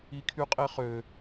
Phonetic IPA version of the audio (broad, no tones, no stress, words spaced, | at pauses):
ikʰyqʼeχø